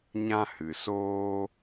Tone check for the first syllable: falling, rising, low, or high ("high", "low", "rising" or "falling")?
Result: high